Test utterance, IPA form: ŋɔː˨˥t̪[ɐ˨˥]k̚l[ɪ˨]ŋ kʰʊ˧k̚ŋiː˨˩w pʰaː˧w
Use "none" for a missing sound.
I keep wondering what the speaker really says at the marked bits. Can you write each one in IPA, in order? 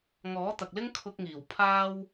ɐ˨, ɪ˥

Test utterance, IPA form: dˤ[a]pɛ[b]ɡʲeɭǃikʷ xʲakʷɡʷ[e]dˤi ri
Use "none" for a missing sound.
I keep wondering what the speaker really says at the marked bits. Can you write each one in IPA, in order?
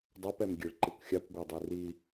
a, m, ɛ

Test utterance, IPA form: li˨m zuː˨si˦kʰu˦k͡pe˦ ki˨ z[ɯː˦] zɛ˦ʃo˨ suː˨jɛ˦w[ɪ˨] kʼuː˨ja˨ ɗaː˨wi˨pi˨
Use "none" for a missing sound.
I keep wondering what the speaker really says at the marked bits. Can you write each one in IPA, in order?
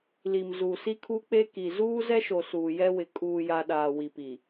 uː˦, ɪ˨

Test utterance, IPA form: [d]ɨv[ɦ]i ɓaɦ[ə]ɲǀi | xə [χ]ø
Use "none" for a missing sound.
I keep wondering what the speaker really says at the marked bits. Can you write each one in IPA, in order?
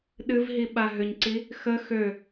ɗ, ɦ, ʏ, x

